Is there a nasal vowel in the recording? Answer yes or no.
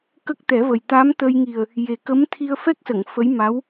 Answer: no